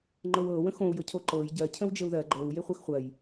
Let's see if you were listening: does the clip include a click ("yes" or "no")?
yes